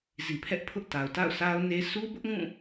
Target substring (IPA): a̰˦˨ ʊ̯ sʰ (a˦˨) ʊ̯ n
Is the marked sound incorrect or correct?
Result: incorrect